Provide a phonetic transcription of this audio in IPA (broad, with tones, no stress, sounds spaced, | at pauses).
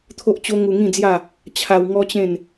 t̪ʰ o˦ ʔ t͡ɕ o˦ ŋ u˧ ŋ ĩ˥˧ d͡z j a˥˧ | t͡ɕʰ a˧ w ŋ ɔ˦ t͡ɕ ẽ˥˧ n